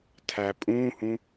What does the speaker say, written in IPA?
tʰ æ pʼ ũ h ũ

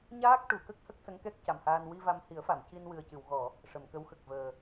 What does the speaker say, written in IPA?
ɲ aː˦˥ k̚ ʈ u˨˩˨ k ə˦˥ k̚ h ə˦˥ k̚ s ə˧˥ ŋ k ɛ˦˥ k̚ c a˨˩ m h aː˧ n w i˧ v a˧ m h i˨˩˦ ə̯ f a˨˩˨ m c i˧ n w ɨ˨˩ ə̯ c ɨ˨˩˨ w ɣ ɔ˨˩˨ | ʂ ə˨˩˨ m k ə˧˥ w x ə˨˩ k̚ v əː˨˩

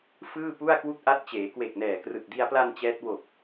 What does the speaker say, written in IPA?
f ɯː˥˩ p u˥˩ a̯ k w u˥˩ k̚ ʔ a˦˥ t̚ t͡ɕ eː˩˦ k w e˨˩ k̚ n ɛː˨˩ k r ɯ˨˩ k̚ d i˧ a̯ p l a˧ n t͡ɕ ɛː˦˥ t̚ w o˨˩ k̚

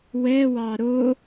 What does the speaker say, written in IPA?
w ɛ w ɑ ɾ o

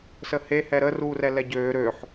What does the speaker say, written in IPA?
s ə h e h ɛ ɾ ə r uː r ɛ l ɛ ɟ øː ɾ ø ħ

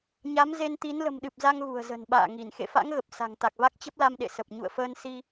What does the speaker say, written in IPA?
ɲ a˨˦ m z e˧ n t̪ i˨˦ n l ə̤˨˩ m ɗ ɨ˨˩ p̚ z a˧ ŋ ɣ ṳ˨˩ ə̯ z ə̤˨˩ n ɓ a̰ː˧˨ ŋ i˧˩ n x ḛ˧˨ f a̰˧˥ ŋ ɣ ə˨˩ p̚ s a̤˨˩ ŋ t̪ a˨˩ k̚ v a˦˥ k̚ t͡ɕ ə˦˥ p̚ l a˧ m ɗ ḛ˧˨ s ə˨˩ p̚ ɲ ṵ˧˨ ə̯ f əː˧ n s i˧

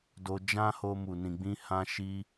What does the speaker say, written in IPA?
d o˧ d͡ʒ ã˦ h o˧ m u˨ n ĩ˨ ɡ͡b ĩ˧ h ã˧ ʃ i˧

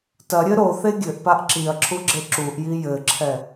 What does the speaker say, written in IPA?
t ɐ ɾʲ ɘ ɾ o θ e ɡʲ ɘ ʔ p a ʔ ǁ i ɐ̯ ǁʰ u ɡ͡ǁ e ǁ u ʔ j i j ɘ ǁʰ ɛ

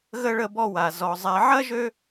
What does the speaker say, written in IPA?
ɣ ə˥ ɭ ə˦ b ɔ˦ w a˩ z ɔ˩ zˤ ɛ˨ ʕ ɐ˥ ʒ ø˦

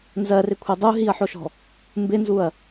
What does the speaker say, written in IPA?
n z ɜ r ɪ kʷʰ e dˤ u ɦ i ɐ̯ ħ o ʃ ɔ̤ | m b ɪ n z u ɐ̯

